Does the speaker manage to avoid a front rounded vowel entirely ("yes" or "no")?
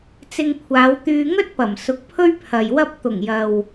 no